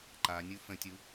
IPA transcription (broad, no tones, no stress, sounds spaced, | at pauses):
ǃ a nʲ u f ə̃ tʲ u